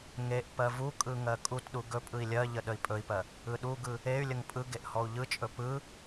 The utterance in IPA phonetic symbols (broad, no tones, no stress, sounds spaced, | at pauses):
ŋ e ʔ p ɜ v u kʼ ɯ ŋ ɜ kʼ u t ɗ u ɡ ɵ pʼ ɯ i̯ lʲ ɜ ʎ ə ɗ ə i̯ pʼ ɵ i̯ p ɜ | ɯ ɗ u ɡ ɯ | e y̯ lʲ ə ŋ pʼ ɯ ɡ e ʔ h ɔ u̯ ʎ ɯ t͡ʃʼ ɵ p ɯ